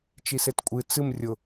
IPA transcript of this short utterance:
t͡ʃ i s e t kʷʼ ɨ t͡s ɨ m rʲ ʊ

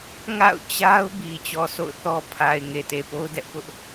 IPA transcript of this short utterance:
ŋ a̰˦˨ ʊ̯ t͡ɕ a˦ ʊ̯ b i˨ t͡ɕ ɔ˨ sʰ o̰˦˨ ʊ̯ θ ɔ˦ pʰ a˨ ɪ̯ ŋ e˨ t e˨ p o˦ ʊ̯ d ɛ˦ ʔ p ʊ˦ ʔ

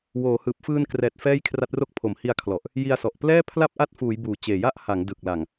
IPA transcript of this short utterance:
w oː˩˦ h ɯː˨˩ p̚ f ɯː˧ n k r ɛː˨˩ t̚ f ɛː˥˩ j kʰ r a˦˥ t̚ r o˥˩ k̚ pʰ o˩˦ m h i˧ a̯ kʰ l ɔ˨˩ ʔ | j i˧ a̯ s ɔ˨˩ ʔ p l ɛː˥˩ pʰ l a˥˩ p̚ ʔ a˦˥ t̚ f uː˩˦ j b uː˨˩ t͡ɕ eː˨˩ j a˦˥ ʔ h a˩˦ ŋ d ɯ˨˩ k̚ l a˨˩ ŋ

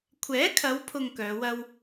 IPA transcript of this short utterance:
kʷʰ ɛː˨˥ kʰ ɐ˨˧ w pʰ ʊ˨ ŋ k œː˨˧ w ɐ˥ w

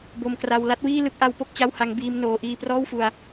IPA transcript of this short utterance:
b o˧ m k r a˧ w l a˥˩ t̚ w iː˥˩ l ɯ˥˩ k̚ ʔ a˦˥ w p o˥˩ k̚ t͡ɕ a˥˩ w h a˦˥ ŋ b iː˧ m n oː˦˥ ʔ iː˥˩ p r ɔː˥˩ w f u˧ a̯

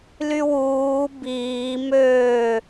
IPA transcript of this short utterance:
l y w uː b iː m øː

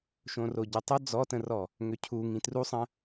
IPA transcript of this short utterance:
ʃ õ r o ɟ ə tˤ o d͡z ɔ t ə̃ r ɔ | ŋ ø cʰ u ŋ ĩ t r u sˤ ə̃

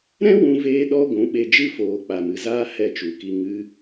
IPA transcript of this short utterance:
ɾ ɛ̃˦ w ũ˧ v eː˧ ɗ ɔ˧ ɡʷ ũ˨˦ ɓ e˧ d͡ʒ ɨ˦ f oː˨ k͡p a˨ m ɨ˨ z aː˦ h ɛ˦˨ t͡ʃ u˨ k i˧ ŋ ɨ˧

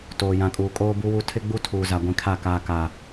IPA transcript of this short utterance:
t oː˨ j ã˨ kʼ uː˨ kʼ oː˦ b u˦ w u˦ tʰ ɪ˦ ɡ͡b u˦ tʰ uː˨ z a˨ ɡʷ ĩ˨ kʰ a˦˨ k aː˨ k a˨

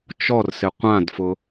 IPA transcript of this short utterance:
t͡ʃ ɔ r s ɪ qʷ ã d f ʊ

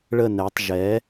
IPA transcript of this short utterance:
ɭ ə˥˨ n ɛ˩˥ tˤ ʒ ɛ˩˥

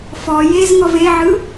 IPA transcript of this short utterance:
f ɔ j e z ŋ ɔ v e ʕ ɯ

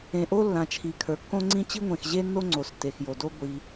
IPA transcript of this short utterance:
ẽ˩ ʔ o˥ lː ã˩ t͡ʃʰ i˩ kʰ ə˞˩ kː õ˥ ŋ͡ǀ ĩ˥ t͡ɕ i˥ ŋʷ ẽ˩ x ʑ e˥ nː o˥ ŋ͡ǀ o˩ s tː e˩ x j o˩ d o˥ ɡʷ i˩

